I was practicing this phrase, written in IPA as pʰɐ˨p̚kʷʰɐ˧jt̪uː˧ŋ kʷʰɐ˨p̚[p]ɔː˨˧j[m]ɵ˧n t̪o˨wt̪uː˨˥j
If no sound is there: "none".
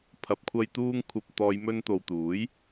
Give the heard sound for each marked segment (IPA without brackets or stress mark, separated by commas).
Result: t̪, m